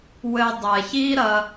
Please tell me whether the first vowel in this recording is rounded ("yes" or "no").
no